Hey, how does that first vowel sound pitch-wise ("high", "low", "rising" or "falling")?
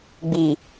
low